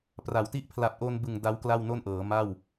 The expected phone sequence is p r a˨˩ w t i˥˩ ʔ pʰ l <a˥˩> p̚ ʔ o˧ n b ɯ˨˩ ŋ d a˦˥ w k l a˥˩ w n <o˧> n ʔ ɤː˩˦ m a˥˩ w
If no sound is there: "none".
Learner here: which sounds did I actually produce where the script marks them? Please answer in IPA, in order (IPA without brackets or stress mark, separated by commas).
a˨˩, o˥˩